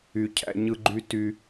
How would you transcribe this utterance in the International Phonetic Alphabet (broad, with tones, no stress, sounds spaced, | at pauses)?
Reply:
y˦ cʰ æ̰˦ ɲ ɯ˦ ɡ͡ǃ y˦ t y˦